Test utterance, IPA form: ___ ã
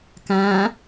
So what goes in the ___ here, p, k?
k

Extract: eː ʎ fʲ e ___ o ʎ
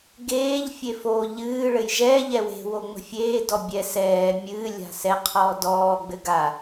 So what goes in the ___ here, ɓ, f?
f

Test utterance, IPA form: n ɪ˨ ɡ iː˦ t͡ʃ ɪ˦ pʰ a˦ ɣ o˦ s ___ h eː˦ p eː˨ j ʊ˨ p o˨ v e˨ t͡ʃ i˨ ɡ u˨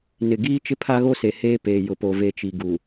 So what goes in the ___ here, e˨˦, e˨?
e˨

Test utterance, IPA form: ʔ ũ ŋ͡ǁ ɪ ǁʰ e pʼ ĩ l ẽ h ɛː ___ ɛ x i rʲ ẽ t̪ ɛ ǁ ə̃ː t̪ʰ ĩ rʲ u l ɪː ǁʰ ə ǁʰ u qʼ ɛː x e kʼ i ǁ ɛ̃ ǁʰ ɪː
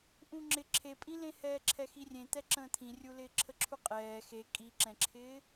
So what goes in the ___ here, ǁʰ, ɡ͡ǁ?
ǁʰ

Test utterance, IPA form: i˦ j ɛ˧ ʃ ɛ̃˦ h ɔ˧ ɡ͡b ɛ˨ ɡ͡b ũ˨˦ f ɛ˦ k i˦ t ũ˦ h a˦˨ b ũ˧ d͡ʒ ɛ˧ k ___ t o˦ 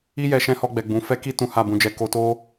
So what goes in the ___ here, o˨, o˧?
o˧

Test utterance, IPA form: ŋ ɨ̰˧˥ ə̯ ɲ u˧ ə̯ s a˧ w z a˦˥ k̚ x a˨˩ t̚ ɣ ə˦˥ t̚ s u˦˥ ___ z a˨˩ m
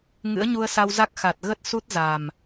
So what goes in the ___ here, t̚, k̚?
t̚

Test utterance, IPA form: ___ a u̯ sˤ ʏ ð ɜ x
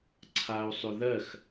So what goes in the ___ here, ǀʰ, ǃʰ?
ǀʰ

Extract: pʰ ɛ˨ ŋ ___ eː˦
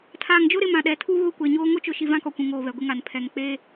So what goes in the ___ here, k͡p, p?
k͡p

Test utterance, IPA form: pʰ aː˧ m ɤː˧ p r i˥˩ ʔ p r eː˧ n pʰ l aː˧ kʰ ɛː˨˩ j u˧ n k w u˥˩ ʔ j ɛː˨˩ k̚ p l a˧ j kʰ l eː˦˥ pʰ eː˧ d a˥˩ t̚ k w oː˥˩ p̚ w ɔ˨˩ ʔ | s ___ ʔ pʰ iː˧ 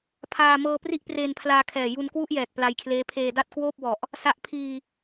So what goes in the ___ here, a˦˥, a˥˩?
a˦˥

